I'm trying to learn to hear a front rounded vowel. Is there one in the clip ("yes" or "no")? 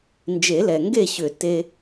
yes